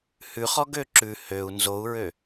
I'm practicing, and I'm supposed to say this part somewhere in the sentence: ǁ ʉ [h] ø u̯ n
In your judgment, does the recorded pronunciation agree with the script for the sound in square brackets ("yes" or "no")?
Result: yes